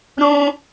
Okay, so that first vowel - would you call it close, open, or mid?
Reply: close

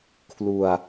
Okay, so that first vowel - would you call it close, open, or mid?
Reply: close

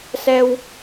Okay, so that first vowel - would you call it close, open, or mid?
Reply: mid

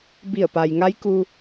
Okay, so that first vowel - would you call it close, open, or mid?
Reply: close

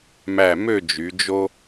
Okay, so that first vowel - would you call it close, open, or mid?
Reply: open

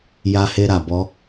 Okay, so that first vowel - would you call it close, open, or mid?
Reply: open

